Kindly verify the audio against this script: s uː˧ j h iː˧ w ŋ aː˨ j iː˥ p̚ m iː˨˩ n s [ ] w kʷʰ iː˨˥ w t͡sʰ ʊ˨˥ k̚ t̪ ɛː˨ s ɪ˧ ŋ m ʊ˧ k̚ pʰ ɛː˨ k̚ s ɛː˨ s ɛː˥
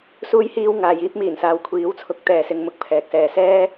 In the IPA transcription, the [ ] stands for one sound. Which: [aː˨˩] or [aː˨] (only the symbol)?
aː˨